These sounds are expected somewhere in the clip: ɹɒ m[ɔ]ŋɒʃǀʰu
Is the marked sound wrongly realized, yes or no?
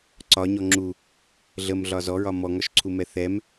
no